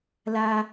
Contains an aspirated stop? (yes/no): no